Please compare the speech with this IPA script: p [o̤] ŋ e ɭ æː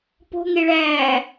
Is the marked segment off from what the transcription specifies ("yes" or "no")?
no